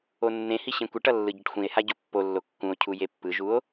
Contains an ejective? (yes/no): no